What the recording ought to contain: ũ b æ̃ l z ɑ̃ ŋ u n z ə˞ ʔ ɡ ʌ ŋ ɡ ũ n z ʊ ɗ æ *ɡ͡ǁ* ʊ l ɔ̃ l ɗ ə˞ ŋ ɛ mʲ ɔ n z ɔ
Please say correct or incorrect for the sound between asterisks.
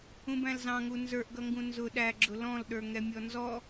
correct